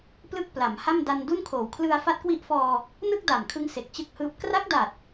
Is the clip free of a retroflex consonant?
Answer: yes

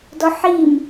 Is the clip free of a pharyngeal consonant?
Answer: no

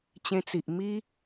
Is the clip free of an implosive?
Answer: yes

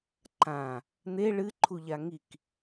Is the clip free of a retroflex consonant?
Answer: no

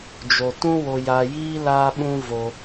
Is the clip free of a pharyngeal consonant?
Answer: yes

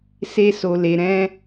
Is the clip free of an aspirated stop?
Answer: yes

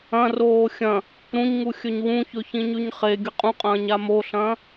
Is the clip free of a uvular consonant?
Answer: no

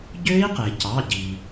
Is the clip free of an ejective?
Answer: yes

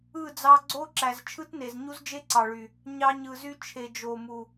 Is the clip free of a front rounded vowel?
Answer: no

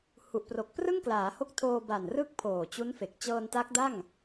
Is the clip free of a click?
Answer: yes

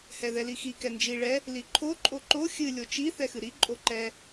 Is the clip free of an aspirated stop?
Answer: no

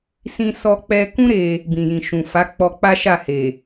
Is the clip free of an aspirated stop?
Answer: yes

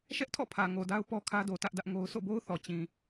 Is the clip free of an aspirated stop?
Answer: no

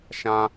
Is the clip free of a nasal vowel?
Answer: no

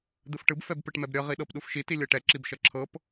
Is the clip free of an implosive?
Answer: no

